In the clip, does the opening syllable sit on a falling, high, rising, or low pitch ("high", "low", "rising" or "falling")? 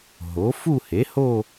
rising